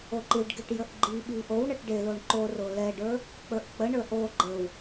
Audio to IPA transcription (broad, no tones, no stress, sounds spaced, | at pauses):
o ǃ i ɖ ɡ e ʈ j ə ʔ ɡ͡ǃ i ɓ i ʔ o w ɳ ə ʈ ɖ e l o ɳ ǃ o r o l ɛ ɖ ə˞ | k͡p ə˞ ʔ k͡p ə ɳ ə˞ ʔ o ɡ͡ǃ ə w